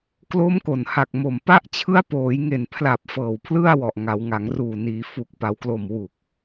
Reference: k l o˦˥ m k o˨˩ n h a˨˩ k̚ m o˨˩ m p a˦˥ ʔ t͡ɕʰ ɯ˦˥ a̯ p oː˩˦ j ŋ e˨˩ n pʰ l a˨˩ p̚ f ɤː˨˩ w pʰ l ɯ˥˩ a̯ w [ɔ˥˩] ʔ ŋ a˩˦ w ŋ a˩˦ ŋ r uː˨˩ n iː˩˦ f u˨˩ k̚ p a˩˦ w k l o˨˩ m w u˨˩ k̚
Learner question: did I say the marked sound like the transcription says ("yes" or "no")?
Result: no